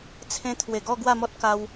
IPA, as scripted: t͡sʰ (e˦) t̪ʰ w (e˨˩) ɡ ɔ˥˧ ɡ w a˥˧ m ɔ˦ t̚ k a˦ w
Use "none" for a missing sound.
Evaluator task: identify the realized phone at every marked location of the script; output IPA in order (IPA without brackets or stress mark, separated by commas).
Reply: ẽ˦, e˨˩